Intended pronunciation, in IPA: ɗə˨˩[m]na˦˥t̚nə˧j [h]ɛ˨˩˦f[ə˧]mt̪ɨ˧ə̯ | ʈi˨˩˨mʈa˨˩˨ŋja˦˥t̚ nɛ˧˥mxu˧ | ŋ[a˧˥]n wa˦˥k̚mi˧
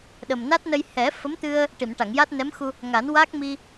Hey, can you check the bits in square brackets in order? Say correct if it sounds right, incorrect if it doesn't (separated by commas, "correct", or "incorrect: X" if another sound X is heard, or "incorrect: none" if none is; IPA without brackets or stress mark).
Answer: correct, correct, incorrect: ə˧˥, incorrect: a˨˩˦